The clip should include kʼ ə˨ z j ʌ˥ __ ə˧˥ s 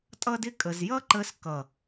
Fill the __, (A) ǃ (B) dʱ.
A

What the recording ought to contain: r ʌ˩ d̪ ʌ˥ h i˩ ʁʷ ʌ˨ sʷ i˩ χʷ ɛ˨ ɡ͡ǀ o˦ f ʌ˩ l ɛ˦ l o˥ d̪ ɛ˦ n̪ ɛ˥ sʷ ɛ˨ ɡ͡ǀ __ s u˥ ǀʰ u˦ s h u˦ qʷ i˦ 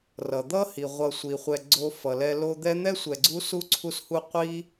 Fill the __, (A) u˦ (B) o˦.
A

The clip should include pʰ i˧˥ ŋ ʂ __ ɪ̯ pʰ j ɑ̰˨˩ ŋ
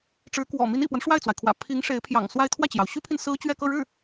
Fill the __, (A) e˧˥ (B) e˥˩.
A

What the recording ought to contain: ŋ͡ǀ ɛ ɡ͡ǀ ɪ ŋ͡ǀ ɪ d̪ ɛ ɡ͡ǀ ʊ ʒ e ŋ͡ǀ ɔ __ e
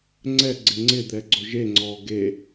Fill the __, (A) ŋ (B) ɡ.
B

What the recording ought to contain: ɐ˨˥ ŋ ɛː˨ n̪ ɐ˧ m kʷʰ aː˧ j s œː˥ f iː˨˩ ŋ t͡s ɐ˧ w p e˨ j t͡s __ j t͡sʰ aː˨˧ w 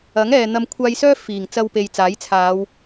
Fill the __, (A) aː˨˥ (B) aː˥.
A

